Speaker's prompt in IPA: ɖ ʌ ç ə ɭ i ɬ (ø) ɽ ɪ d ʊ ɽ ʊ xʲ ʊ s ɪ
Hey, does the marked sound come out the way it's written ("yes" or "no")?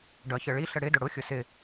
no